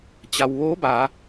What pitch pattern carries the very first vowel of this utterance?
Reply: low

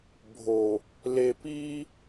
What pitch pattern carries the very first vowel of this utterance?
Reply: low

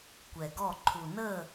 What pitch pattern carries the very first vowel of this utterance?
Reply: low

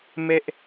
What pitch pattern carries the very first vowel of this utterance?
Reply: high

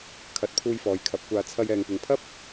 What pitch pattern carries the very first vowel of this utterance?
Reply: rising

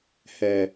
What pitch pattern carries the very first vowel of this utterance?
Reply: low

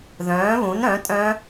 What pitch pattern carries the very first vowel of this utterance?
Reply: rising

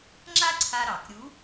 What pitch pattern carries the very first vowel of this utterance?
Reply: high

